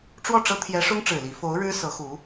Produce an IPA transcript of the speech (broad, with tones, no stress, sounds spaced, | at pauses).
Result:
ʈ͡ʂ w ɔ˥˩ ʈ͡ʂ ɤ˥ t̪ʰ j ɛ˧˥ ʂ ʊ˥ ŋ ʈ͡ʂ ɻ̩˨˩ l i˧˥ f o˧˥ ʊ̯ ɻ ɻ̩˥ s ɤ˧˥ x u˧˥